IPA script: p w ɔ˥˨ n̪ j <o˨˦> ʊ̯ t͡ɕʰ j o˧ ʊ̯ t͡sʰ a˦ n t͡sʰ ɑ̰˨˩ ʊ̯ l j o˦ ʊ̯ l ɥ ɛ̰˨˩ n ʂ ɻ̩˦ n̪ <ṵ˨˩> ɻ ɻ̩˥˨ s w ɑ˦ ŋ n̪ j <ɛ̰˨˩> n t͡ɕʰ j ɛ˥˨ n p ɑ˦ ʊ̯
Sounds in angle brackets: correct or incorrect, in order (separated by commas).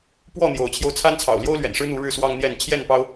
correct, incorrect, incorrect